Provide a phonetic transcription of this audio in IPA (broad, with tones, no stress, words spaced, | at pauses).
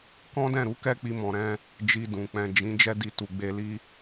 kɔ̃˦dɛ̃˦˨ɾu˨˦kɛ˦ k͡pi˧mɔ̃˨ɾɛ̃˧ | d͡ʒi˧dũ˨ k͡pɛ̃˨ d͡ʒĩ˨˦ d͡ʒɛ˦di˧ tu˨ ɡ͡be˧li˦